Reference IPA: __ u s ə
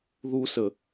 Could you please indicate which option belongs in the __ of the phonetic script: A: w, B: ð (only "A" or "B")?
B